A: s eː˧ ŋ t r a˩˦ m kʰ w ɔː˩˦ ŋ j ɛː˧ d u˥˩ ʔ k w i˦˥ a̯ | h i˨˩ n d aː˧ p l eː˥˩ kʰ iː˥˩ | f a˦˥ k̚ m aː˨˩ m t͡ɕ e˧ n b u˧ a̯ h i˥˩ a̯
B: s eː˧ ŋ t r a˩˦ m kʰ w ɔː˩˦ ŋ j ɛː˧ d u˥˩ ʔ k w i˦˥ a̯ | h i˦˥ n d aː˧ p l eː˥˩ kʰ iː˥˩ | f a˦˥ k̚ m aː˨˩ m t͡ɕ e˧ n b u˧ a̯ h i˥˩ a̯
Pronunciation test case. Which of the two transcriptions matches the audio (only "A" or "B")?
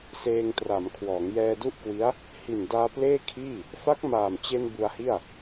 A